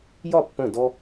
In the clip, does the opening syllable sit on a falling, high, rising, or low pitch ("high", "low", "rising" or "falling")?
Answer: falling